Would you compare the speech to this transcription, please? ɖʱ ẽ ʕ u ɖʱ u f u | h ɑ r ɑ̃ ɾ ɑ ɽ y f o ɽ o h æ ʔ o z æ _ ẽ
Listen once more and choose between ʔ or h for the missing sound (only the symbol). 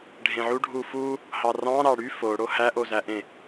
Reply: ʔ